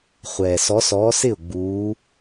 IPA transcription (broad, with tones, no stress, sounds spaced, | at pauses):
χʷ ɛː˩ s ɔ˨˦ s ɔː˨˦ s ɪ˥˩ ʊ̯ ɡ͡b uː˨˦